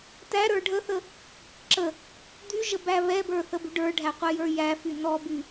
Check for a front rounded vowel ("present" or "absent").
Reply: present